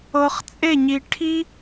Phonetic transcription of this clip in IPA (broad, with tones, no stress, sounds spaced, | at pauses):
ɤ˧ χ t͡sʼ e˥˧ ɲ i˧ ʈʰ i˥